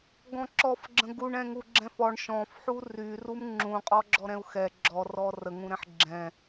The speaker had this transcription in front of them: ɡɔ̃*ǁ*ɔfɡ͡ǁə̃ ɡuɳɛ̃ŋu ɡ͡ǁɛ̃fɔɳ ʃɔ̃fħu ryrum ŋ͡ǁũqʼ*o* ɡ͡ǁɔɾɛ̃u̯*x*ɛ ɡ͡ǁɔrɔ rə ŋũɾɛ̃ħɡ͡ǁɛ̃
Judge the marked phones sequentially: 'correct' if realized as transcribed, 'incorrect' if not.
correct, incorrect, correct

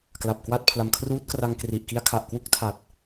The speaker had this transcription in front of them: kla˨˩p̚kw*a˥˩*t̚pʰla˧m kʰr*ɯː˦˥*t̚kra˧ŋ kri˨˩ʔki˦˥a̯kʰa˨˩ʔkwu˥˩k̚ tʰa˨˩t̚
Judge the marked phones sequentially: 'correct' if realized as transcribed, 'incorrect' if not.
correct, incorrect

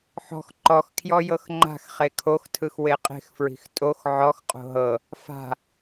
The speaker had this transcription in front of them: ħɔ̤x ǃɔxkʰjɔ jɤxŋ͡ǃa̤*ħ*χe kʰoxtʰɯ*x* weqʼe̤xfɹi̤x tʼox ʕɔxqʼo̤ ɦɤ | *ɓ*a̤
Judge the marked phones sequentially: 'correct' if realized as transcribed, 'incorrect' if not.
incorrect, correct, incorrect

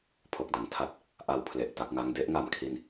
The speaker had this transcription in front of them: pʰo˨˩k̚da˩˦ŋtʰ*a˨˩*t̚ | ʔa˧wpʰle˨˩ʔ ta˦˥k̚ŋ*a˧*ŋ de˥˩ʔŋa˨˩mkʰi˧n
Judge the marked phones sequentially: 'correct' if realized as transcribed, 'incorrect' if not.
incorrect, incorrect

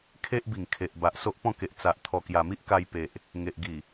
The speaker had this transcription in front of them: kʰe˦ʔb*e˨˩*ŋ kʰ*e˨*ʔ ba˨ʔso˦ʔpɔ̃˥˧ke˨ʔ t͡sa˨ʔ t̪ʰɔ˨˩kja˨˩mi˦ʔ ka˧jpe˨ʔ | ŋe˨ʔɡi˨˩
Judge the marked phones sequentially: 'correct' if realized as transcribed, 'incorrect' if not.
incorrect, correct

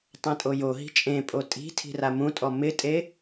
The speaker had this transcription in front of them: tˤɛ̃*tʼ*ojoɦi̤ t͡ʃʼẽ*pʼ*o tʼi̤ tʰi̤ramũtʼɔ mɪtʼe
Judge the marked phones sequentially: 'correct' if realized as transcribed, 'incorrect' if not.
correct, correct

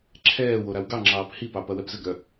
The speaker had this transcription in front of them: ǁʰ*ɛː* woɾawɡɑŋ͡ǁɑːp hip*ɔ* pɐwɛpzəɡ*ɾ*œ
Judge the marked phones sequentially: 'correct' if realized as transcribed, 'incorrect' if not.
correct, incorrect, correct

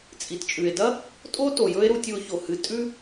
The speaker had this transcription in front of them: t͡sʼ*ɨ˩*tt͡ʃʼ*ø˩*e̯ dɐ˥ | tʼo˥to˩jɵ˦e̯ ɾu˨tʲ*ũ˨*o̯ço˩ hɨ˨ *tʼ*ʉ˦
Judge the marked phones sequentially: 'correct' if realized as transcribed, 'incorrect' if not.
incorrect, incorrect, incorrect, correct

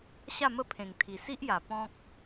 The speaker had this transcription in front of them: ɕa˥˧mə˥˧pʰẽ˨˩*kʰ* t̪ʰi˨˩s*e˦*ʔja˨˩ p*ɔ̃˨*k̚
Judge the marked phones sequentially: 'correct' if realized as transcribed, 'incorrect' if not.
incorrect, incorrect, incorrect

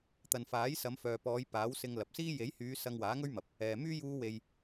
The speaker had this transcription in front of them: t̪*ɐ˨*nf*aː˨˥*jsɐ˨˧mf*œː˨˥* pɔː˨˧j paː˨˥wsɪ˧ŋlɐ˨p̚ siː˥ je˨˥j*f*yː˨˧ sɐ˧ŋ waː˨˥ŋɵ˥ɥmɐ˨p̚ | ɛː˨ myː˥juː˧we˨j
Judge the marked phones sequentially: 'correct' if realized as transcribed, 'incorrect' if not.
correct, correct, incorrect, incorrect

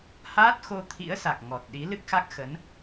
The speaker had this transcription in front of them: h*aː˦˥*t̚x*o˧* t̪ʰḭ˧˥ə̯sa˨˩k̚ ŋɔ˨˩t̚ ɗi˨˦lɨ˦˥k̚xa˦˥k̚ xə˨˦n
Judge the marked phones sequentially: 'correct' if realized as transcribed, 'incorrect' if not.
correct, correct

